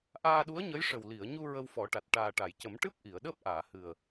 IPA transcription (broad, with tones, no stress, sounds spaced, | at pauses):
ʔ aː˧ ɗ u˧˥ ə̯ ɲ ə˧˥ j ʂ ə˨˩ w l i˨˩˨ ə̯ ɲ u˧ ɹ ə˧ w f ɔ˨˩˦ ʈ a˨˩ t̚ ʈ aː˨˩ ʈ a˨˩˨ j c ə˨˩˦ m ʈ ɨ˦˥ p̚ ʔ i˨˩˨ ə̯ ɗ əː˦˥ p̚ ʔ aː˨˩˨ h ɨ˨˩ ə̯